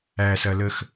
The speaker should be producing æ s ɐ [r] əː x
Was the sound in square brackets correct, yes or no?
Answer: no